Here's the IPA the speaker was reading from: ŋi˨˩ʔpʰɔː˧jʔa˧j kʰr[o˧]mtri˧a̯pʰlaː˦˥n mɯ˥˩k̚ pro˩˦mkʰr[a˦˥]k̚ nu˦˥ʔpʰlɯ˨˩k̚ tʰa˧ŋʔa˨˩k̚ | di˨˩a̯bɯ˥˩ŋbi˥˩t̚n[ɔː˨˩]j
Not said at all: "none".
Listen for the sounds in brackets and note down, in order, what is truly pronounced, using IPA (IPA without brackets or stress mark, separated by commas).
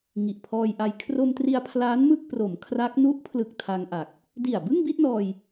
o˧, a˦˥, ɔː˧